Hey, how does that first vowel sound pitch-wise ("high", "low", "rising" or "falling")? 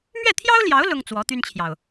falling